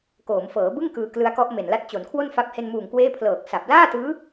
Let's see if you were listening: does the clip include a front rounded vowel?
no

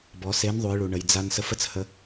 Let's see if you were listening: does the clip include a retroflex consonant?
yes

